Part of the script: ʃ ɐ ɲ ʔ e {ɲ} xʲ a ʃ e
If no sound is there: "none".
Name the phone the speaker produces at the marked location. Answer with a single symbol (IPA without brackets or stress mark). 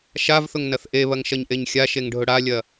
ɲ